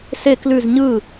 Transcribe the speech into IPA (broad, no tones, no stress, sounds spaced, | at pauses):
s e k l ʉ z ɲ ɯ